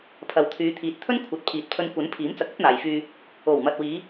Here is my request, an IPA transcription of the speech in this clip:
pʰ ɐ˨ w t̪ʰ yː˨˧ t̪ʰ iː˨ t̚ t̪ʰ ɵ˥ n kʷʰ ɐ˨˥ t̚ pʰ iː˨˥ t̚ pʰ ɵ˧ n kʷ ɐ˨˥ n pʰ iː˨˥ m t͡s ɐ˨ k̚ ɐ˥ t̚ n̪ aː˨ j f yː˧ | o˨˩ w m ɐ˨ t̚ w iː˨˧

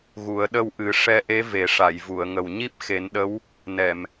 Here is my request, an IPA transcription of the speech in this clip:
ɣ u˨˩˦ ə̯ ɗ ə˧ w ʔ ɨ˨˩˦ ʂ ɛ˧ ʔ e˧˥ v e˨˩˦ ʂ a˨˩˨ j v u˨˩˨ ə̯ ŋ ə˨˩ w ɲ i˦˥ p̚ x e˨˩˦ n ɗ ə˧˥ w | n ɛ˨˩˨ m

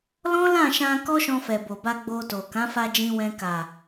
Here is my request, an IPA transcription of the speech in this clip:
l ɔ̃˦ l ã˦˨ ʃ ã˧ k ɔ˦ ʃ ɔ̃˧ f ɛ˨ b o˨ b a˧ ɡ͡b o˧ t o˨ k ã˨˦ f a˧ d͡ʒ ĩ˧ w ɛ̃˧ k a˨

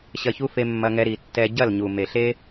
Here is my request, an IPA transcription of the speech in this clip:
ɕ ɐ˧ ç u˦ f e˧ mː ɐ˧ ŋ ɛ˧ ɾ i˨ tː ɛ˧ ɟ ɐ˦˨ l ɲ u˨ m e˨ ɬ e˦

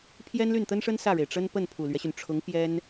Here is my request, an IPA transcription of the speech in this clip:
pʰ j ɛ˥ n l y˥˩ n t̪ ə˥ n ʂ ə˥ n s ä˥˩ ɻ e˩ ɪ̯ ʈ͡ʂ ə˥ n p ə˥˩ n pʰ u˨˩ l ɥ ɛ˦ ɕ y˩ n ʈ͡ʂʰ ʊ˧˥ ŋ p j ɛ˥ n

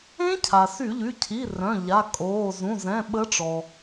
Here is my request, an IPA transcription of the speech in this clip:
ẽ˦˥ cʰ a˩ s y˧˩˧ ʎ y˩˧˩ cʰ i˩˧˩ r œ̃˩˧˩ ʎ a˩˧˩ kʼ oː˩˧˩ z ũ˩˧˩ z ɛ̃˩˧˩ ɓ ə˨˦ ʈ͡ʂ ɔ˩

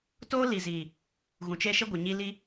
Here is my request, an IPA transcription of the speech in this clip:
t oː˦ l i˨ z iː˨ | ɣ ũ˨ t͡ʃ e˦ ʃ ɪ˦ ɡʷ ɪ˨ ɲ i˦ l i˦

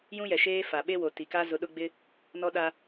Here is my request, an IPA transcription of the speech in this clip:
j ũ˦ j ɛ˨ ʃ eː˦ f a˨ ɓ e˦ w o˨ t i˨ k a˦ z ʊ˨ ɗ ʊ˦ ɡ͡b ɪ˦ | n ɔ˦ ɗ a˦

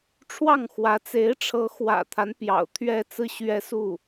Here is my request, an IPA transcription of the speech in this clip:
ʈ͡ʂʰ w ɑ˥˩ ŋ x w ä˧˥ t͡s e˧˥ ɪ̯ ʈ͡ʂʰ ɤ˧˥ x w ä̰˨˩ t̪ʰ a˦ n p j ɑ̰˨˩ ʊ̯ t̪ʰ ɥ ɛ˥˧ t͡s ɹ̩˥˩ ɕ ɥ ɛ˥ s u˥˩

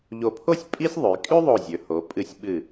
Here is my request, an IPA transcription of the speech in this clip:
ʎ o˧˩ pʰ o˥ sʲ pʼ i˥ sʲ ðˤ ʉ˩˧ j kʼ ʉ˥ ðˤ o˧˩ zʲ ɵ˩˧ h o˩˧ pʼ ɨ˧˩ sʲ ɓ ɨ˧˩

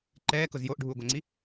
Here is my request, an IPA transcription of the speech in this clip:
ǃ ɛː k ʊ z j o ʔ ɖʱ uː ɡʷ a ŋ͡ǀ i

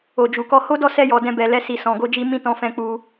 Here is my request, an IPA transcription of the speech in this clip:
o˨ d͡ʒ u˨ k ɔ˧ h o˦ d ɔ˦˨ s ɛ˧ j ɔ˨ d ɛ̃˧ b ɛ˨ l ɛ˧ s i˨ s ɔ̃˨ ɡ o˧ d͡ʒ i˧ m ĩ˦ t ɔ̃˧ f ɛ̃˧ k͡p u˧

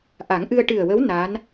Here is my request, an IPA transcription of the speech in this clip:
ʔ a˨˩˦ ŋ ʔ ɨ˧ ə̯ ʈ ɨ˨˩ ə̯ w ə˧˥ w n a˧˥ n

